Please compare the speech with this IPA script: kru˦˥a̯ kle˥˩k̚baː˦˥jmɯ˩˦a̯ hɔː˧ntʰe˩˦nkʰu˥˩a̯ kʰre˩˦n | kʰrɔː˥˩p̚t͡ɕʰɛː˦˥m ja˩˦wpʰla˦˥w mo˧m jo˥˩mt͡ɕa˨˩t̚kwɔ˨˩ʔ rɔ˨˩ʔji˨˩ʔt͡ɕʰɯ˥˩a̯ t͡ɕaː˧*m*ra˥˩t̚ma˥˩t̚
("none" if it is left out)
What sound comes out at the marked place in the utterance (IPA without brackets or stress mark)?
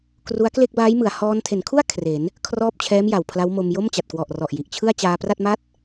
p